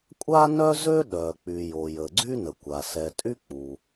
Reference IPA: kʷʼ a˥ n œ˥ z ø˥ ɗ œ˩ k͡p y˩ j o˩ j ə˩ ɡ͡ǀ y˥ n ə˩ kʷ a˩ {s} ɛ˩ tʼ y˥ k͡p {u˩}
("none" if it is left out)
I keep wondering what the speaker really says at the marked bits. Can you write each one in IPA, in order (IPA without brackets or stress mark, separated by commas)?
s, u˩